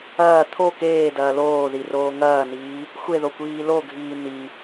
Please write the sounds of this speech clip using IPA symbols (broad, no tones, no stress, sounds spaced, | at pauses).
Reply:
ɐː t̪ʰ o k eː d ɐː l oː ð i r oː ŋ ɐː n iː | xʷ e ð o kʷ iː l o ɡʱ iː n̪ i